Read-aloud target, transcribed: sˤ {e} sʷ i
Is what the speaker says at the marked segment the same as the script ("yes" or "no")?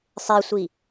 yes